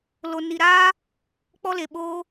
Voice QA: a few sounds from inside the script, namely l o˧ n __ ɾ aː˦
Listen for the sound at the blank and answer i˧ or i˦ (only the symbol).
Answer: i˧